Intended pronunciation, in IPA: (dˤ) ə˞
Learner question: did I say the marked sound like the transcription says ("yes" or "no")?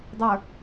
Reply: yes